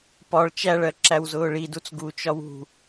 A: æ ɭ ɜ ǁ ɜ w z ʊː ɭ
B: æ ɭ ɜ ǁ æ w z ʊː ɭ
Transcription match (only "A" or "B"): B